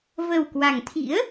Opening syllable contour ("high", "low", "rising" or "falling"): low